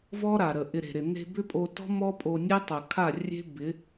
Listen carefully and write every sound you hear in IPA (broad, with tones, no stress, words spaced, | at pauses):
vɔ˦ɾa˨ɾə˨ ʔɪ˧ɾe̤˨ɾɪ˨ ne̤˧bʏ˦pʼo˧tɔ̤˦ mɔ˦pʼo˧nʲe˦ tˤə˨ kʰa˦˨ rʲe̤˦bɪ˨˦